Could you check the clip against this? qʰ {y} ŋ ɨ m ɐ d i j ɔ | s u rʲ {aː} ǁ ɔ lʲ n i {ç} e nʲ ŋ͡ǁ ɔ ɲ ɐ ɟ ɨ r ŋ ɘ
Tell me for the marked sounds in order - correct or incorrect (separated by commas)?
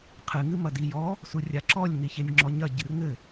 incorrect, incorrect, correct